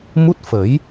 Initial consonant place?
labial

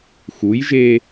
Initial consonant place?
velar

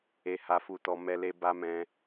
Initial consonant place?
glottal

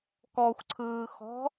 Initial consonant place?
velar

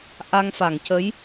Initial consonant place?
glottal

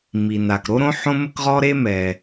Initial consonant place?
labial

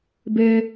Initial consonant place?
labial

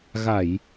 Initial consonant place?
velar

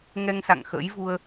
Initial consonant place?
velar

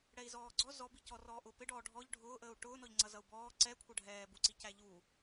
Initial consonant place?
retroflex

